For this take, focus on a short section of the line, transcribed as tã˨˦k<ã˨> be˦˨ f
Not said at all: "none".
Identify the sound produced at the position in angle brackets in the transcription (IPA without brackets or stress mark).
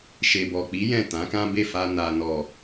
ã˦